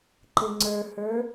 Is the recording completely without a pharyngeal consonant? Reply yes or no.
yes